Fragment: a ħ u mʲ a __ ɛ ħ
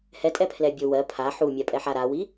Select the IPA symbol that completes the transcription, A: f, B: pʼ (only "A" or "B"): B